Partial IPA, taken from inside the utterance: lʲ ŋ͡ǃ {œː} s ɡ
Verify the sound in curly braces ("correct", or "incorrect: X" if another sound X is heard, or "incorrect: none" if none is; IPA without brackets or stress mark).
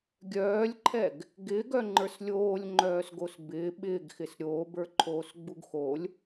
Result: correct